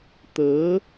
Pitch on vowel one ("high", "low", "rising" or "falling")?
rising